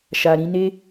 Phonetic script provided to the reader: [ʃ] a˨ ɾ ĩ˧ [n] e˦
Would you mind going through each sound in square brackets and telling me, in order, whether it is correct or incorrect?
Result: correct, correct

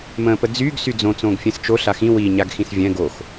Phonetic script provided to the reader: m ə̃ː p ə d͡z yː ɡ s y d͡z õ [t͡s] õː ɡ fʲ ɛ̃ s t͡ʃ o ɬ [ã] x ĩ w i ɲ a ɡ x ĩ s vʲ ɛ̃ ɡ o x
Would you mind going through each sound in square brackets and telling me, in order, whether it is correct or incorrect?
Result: correct, incorrect

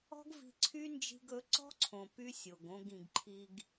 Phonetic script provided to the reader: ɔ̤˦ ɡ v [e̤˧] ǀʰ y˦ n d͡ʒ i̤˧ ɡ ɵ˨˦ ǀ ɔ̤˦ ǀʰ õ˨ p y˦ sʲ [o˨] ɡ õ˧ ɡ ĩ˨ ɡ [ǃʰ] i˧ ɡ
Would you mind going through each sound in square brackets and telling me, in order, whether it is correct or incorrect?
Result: incorrect, correct, correct

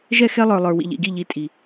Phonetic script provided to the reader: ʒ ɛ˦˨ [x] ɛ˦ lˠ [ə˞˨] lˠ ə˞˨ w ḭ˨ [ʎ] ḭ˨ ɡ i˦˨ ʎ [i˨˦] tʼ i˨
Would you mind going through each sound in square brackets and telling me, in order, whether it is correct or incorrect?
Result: correct, correct, correct, correct

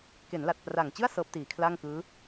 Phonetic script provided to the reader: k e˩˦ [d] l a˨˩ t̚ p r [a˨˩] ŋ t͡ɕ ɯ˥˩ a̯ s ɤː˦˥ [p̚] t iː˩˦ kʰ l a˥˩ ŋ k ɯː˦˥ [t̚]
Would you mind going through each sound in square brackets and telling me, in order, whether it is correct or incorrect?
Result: incorrect, correct, correct, incorrect

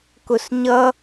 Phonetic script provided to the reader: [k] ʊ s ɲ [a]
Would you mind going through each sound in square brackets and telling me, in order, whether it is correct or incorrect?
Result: correct, incorrect

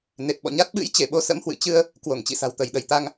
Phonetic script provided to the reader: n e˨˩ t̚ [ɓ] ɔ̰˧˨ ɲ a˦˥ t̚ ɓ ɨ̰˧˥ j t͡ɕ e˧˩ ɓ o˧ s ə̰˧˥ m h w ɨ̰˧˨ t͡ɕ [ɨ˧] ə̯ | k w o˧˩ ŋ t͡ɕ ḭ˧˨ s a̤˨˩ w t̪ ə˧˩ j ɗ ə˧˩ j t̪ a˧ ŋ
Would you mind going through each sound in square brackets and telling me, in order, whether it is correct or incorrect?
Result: correct, correct

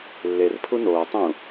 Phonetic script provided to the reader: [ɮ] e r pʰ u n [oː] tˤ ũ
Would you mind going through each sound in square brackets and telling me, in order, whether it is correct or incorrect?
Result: incorrect, correct

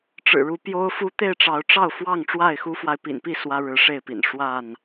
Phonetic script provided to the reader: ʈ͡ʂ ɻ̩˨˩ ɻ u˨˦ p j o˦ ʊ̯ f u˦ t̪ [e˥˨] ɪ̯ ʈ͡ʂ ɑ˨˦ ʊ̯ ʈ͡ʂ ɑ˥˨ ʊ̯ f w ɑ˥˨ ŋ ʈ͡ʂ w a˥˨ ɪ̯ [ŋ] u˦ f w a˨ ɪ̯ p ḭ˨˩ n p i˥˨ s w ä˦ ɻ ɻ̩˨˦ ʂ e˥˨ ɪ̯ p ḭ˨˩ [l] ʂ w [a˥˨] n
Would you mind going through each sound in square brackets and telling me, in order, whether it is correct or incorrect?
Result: correct, incorrect, incorrect, correct

